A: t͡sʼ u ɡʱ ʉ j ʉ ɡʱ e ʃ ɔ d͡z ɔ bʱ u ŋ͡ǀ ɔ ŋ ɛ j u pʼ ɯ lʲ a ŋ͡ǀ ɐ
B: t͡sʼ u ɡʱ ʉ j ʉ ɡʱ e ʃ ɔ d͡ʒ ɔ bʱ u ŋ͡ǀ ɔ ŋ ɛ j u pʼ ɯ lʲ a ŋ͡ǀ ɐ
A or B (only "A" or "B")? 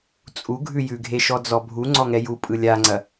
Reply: A